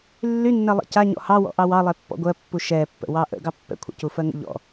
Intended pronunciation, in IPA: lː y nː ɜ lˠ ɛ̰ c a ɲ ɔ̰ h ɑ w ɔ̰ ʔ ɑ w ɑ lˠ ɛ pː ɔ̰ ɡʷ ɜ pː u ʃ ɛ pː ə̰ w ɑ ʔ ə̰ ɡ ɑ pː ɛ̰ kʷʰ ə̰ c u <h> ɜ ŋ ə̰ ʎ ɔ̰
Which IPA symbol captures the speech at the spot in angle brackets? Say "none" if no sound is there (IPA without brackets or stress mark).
f